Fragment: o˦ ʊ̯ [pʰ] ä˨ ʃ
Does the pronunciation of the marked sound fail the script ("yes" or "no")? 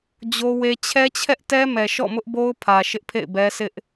no